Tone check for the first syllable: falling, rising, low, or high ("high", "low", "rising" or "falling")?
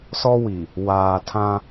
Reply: high